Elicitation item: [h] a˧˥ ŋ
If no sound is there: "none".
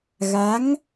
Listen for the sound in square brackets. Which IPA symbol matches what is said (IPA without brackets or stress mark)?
ɣ